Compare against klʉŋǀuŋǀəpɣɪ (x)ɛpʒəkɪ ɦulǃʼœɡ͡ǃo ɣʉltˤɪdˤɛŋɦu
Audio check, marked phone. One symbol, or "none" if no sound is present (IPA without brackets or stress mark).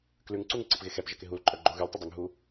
x